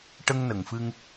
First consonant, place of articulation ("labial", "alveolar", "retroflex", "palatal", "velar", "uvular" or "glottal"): retroflex